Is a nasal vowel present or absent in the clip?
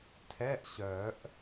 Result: absent